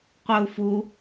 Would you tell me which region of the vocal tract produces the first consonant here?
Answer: uvula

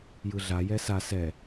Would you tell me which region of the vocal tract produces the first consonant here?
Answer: palate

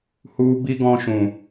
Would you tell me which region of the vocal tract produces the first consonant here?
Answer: throat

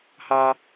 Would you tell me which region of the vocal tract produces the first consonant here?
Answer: throat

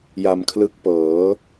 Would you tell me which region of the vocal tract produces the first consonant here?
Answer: palate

